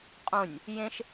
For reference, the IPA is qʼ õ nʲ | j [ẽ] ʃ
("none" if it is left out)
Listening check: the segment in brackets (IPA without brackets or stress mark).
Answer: ẽ